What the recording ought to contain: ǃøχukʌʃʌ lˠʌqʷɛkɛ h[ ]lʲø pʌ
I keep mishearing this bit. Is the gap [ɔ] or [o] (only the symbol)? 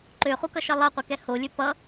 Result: o